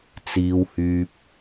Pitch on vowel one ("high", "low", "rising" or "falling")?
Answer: low